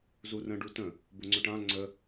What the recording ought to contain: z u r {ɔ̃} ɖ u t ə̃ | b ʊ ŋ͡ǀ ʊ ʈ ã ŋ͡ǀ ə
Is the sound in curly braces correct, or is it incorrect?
incorrect